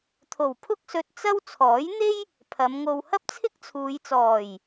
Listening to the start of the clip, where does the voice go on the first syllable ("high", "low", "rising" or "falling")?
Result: low